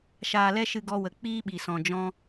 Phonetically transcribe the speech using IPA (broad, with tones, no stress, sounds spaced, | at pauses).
ʃ aː˧ l ɛ˦ ʃ ɨ˧ ɡ ɔ˧ w ə˨ k͡p iː˦ ɓ i˨ s ɔ̃˨ d͡ʒ ɔ̃˧